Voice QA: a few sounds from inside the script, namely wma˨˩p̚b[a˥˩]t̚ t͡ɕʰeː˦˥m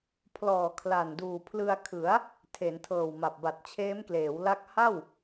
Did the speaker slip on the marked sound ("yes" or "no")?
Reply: yes